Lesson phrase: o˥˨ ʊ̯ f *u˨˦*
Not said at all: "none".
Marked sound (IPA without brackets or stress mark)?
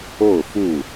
u˥˨